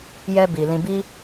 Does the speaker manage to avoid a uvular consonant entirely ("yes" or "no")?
yes